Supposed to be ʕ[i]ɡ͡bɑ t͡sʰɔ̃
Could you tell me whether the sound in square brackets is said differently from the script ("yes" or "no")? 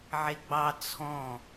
yes